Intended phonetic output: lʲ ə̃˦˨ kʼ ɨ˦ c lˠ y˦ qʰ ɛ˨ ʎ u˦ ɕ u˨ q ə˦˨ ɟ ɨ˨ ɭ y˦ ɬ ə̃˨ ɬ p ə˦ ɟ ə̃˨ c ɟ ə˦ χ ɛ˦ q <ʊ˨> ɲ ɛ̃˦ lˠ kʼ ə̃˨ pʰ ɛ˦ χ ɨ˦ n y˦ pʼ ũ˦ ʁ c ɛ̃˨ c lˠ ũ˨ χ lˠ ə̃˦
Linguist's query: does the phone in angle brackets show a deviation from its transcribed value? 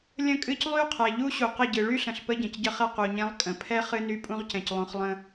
yes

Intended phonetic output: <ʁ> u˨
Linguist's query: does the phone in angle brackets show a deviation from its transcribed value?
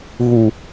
yes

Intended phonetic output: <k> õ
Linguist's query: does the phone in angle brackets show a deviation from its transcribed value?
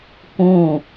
no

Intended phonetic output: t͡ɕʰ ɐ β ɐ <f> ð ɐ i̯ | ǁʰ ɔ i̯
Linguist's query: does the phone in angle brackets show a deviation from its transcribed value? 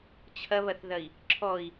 yes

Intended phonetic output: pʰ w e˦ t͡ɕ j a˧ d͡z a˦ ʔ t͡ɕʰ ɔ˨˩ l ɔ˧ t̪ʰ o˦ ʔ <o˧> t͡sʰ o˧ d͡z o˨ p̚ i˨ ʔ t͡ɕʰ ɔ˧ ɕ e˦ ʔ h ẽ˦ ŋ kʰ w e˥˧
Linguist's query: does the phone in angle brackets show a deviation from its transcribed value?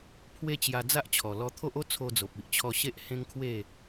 yes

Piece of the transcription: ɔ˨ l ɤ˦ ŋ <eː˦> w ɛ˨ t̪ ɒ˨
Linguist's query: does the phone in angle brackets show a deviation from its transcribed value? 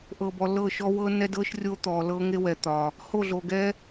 yes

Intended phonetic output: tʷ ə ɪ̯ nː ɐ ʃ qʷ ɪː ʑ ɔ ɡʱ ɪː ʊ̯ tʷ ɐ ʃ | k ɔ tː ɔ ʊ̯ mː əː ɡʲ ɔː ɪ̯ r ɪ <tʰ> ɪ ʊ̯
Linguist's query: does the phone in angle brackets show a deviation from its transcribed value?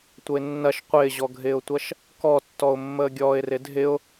yes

